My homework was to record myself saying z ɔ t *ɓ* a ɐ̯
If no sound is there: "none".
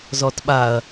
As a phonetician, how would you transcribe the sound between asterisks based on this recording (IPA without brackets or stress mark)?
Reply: ɓ